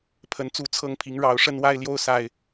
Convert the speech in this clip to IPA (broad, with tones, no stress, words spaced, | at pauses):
pʰə˨˩nt͡su˥˨t͡sʰɤ˥˨ŋpʰi˨˦ŋ ɻɑ˨˦ʊ̯ʂə˦nwa˦ɪ̯ljo˦ʊ̯ sa˨˩ɪ̯